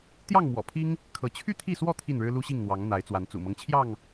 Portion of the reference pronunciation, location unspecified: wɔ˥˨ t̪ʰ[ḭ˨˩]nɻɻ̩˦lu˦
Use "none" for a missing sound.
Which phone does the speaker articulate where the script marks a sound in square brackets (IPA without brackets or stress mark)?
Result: i˥˨